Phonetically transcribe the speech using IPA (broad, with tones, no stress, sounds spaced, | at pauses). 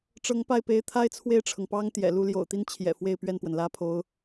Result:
ʈ͡ʂ ɤ˧˥ ŋ p a˥˩ ɪ̯ p e˧˥ ɪ̯ t̪ʰ a˥ ɪ̯ t͡sʰ w e˥˩ ɪ̯ ʈ͡ʂʰ ɤ˩ ŋ p ɑ˥ ŋ t̪ j ɛ̰˨˩ l u˥˩ l j o̰˨˩ ʊ̯ t̪ i˥ n t͡ɕʰ j ɛ̰˨˩ f w e˥˧ ɪ̯ p ɥ ɛ˥˩ n p w ə˩ n l ä˥ pʰ o˧˥ ʊ̯